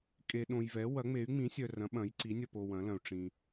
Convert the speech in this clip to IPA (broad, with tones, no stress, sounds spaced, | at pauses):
kʼ e˨ ɗ õ˨ j v ɛ˩˥ w ɐ˩˥ ŋ͡m e˩˥ y̯ ŋ͡m ĩ˩˥ sʲ œ˨ r ɐ̃˩˥ ɓ ɐ̃˩˥ j ǀ i˩˥ nʲ ɐ˨ p o˨ w ɐ̃˩˥ l ɐ̃˨ u̯ ʈ͡ʂ ĩ˨